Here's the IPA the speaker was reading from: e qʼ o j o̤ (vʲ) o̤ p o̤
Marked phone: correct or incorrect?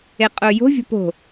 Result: correct